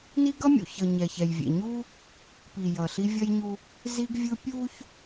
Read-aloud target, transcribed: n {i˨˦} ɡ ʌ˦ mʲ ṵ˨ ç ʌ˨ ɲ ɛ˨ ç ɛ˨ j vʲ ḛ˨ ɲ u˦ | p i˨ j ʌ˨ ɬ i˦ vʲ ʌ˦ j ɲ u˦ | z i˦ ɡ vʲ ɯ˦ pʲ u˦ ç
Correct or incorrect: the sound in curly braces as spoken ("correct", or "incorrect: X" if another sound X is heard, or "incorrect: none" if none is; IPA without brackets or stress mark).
incorrect: i˦